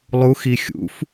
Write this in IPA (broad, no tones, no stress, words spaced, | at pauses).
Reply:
lˠuxi xʲṵf